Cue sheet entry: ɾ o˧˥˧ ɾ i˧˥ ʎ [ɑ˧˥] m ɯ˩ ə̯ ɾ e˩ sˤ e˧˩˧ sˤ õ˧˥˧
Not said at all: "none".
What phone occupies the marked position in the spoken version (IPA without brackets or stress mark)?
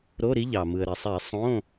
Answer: ɑ˩